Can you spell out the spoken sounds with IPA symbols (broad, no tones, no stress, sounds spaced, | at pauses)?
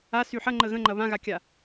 a s y ħ ɐ ŋ͡ǃ ə ɣ ə̃ ŋ͡ǃ ɐ β ã ɣ a kʲ a